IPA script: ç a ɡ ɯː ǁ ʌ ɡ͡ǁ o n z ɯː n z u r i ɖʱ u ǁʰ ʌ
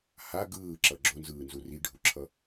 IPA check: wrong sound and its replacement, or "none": ç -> h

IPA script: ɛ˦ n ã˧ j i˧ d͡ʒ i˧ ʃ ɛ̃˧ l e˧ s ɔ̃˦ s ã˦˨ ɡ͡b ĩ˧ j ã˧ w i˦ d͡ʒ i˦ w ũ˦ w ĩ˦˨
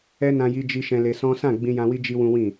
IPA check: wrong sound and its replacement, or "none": none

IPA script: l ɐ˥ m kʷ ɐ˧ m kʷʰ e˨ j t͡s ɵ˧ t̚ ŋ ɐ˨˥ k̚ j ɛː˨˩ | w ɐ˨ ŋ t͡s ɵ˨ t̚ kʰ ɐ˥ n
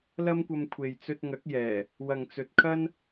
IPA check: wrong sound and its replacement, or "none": none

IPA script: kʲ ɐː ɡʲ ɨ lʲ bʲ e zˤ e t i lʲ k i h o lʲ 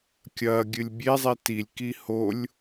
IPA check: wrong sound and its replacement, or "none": none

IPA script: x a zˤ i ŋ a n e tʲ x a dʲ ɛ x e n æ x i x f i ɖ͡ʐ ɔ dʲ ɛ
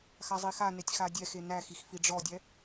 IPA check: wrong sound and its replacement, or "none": ŋ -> x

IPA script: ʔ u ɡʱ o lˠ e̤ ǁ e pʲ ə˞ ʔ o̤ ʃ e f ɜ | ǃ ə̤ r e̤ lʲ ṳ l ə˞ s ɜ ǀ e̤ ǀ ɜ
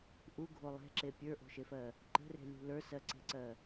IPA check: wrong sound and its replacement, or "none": none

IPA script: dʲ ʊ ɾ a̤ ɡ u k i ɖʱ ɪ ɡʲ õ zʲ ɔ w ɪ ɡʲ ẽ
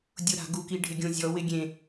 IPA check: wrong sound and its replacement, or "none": none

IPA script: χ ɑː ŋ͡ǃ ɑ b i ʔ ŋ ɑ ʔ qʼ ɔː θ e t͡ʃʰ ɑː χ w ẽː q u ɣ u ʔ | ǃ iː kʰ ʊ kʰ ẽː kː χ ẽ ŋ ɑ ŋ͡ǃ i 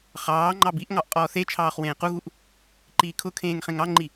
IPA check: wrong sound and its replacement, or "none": kː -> ŋ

